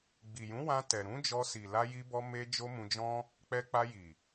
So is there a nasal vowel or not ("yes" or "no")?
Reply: yes